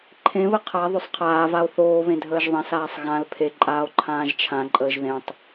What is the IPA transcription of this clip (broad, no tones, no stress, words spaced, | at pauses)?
ǃʰẽβə qʰa ðˤɵsˤqʰaːvao̯ θoːβẽ dʱəːʒðˤẽsaːsˤ ɣãl pʰeǃʼaːo̯ ǃʰãːʒt͡ʃʰãǃʼəːʒ ðẽtˤ